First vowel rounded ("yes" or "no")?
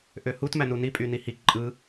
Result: yes